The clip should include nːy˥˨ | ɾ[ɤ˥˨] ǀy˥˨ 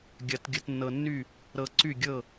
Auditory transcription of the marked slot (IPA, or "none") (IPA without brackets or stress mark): ɤ˥˨